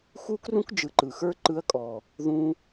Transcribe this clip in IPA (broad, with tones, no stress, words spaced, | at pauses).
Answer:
xu˦krũ˦k d͡ʒɯ˨ǃɯ˨xə˞˦ ǃɯ˧ɐ̯kʼɔ˨ | ðũ˧